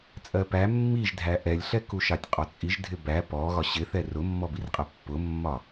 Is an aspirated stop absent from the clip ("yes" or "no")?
yes